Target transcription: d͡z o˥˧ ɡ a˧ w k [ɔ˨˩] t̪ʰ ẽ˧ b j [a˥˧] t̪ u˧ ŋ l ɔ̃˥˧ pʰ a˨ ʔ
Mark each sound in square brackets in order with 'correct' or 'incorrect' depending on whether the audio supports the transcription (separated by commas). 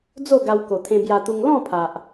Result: incorrect, incorrect